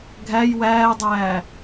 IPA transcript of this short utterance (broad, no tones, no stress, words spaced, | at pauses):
ɡʱæj wæːdˤæː